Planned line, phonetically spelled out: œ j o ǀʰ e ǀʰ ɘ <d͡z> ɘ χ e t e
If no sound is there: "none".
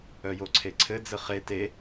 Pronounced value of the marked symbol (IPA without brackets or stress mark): d͡z